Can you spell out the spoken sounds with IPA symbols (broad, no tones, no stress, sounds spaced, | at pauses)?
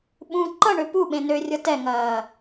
ɓ ũ ǃ ʌ ɳ ø p u ɓ ẽ n ø rʲ ʌ t ɛ ŋ ɐː